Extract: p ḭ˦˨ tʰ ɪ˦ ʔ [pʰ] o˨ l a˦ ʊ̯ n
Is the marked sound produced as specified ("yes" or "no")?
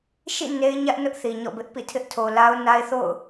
no